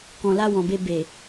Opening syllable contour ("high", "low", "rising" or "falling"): low